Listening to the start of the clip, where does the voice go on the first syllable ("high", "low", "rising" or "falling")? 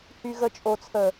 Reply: low